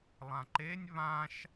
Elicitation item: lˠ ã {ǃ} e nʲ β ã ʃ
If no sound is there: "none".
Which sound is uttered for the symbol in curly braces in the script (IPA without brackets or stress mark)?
ǃ